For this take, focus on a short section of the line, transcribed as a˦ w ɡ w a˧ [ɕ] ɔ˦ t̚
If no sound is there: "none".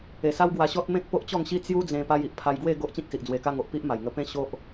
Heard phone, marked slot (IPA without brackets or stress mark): ɕ